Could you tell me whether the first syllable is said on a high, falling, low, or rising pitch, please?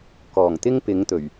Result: low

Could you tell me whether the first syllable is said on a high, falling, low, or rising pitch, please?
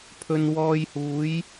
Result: low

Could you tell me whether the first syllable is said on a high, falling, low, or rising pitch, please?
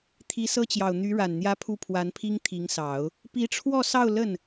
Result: rising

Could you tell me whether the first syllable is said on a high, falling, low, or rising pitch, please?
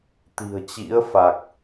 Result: low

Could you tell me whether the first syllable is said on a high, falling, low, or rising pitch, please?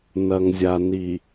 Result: low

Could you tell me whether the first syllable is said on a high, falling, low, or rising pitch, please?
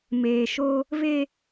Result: low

